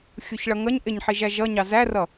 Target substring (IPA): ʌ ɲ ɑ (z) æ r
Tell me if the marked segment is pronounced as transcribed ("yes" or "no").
yes